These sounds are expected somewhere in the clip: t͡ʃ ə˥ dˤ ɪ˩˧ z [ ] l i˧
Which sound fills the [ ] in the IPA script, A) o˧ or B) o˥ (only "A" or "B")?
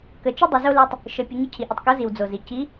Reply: B